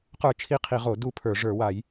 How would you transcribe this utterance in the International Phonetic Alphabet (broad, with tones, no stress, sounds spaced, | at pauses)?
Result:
q ə˞˥˧ t͡ʃʰ i˥˧ qʰ i˧˩˧ ʁ o˧˩˧ d u˥˧ pʰ ə˞˧˩˧ ʐ ə˞˧˩˧ w a˧˩˧ j